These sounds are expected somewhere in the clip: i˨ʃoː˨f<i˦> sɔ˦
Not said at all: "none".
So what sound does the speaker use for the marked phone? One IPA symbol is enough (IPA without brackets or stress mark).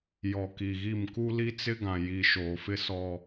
ɪ˦